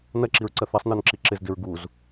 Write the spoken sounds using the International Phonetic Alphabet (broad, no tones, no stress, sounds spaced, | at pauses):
n ɐ ǁ i ɹ ǀ ɐ θ ɐ sˤ n ɔ n ǁ i ǁ ɪ z d ɪ ɹ ɡ u z